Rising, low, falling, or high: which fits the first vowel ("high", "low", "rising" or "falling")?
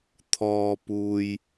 low